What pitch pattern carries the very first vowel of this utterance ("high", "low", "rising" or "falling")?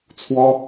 high